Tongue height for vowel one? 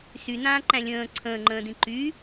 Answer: high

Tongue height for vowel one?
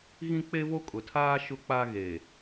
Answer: high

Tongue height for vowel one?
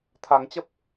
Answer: low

